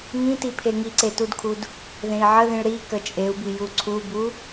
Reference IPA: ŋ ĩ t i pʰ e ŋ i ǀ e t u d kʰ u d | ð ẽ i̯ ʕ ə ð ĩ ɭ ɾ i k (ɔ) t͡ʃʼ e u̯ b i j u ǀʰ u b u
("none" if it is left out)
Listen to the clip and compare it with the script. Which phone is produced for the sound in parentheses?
ə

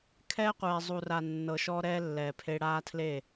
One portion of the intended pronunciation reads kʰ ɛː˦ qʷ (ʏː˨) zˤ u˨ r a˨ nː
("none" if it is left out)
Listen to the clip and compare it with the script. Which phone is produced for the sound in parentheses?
ɛː˨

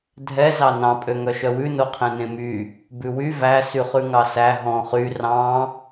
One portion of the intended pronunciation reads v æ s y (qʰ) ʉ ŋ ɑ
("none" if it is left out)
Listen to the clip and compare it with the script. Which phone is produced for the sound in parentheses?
χ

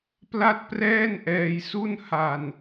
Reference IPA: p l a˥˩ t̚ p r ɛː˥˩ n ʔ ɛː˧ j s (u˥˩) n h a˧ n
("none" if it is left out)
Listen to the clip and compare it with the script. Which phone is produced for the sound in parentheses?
u˥˩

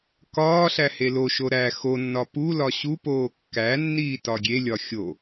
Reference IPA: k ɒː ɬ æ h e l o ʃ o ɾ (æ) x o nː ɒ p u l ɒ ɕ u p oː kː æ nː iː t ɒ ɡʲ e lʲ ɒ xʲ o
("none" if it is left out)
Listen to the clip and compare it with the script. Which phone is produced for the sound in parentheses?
æ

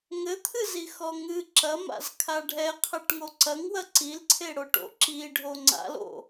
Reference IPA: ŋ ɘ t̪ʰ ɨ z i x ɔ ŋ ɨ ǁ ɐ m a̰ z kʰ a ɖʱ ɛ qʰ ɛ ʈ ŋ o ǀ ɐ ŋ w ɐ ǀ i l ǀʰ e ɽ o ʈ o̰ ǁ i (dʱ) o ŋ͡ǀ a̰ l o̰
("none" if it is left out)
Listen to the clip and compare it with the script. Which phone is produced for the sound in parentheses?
ɖʱ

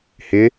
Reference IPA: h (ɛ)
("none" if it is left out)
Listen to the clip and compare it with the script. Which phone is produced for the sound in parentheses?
ɪ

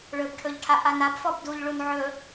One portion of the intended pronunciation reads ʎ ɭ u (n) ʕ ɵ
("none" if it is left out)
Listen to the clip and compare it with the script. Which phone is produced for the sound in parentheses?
n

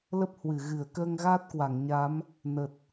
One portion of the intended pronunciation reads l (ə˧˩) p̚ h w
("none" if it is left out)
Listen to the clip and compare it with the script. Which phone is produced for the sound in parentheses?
ə˦˥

